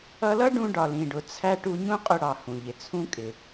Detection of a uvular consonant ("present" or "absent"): present